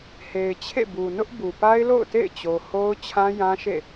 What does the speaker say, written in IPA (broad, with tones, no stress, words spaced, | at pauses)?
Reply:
he˨ɪ̯t͡ɕʰḛ˦˨ bu˨nʊ˦ʔbu˨ pa˦ɪ̯lo̰˦˨ʊ̯tḛ˦˨ɪ̯ t͡ɕo˨ho˦ʊ̯ t͡ɕʰã˦jã˦ʃḛ˦˨